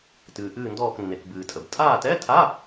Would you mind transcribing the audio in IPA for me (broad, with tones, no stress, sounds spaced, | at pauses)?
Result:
t ɨː˩ ʔ ɨː˦˨ n d ɔː˦˨ k nː e˩ k b ɨː˩ tʼ ə˩ b tʼ aː˦˨ t ɛ˧˥˧ tʰ a˧˥˧